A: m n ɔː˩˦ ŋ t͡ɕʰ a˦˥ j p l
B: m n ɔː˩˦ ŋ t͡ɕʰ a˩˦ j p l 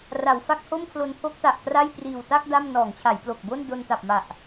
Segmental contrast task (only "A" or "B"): B